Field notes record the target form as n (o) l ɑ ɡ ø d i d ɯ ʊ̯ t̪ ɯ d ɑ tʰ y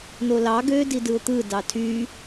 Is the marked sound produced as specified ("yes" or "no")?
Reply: yes